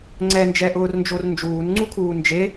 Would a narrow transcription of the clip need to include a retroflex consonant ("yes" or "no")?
no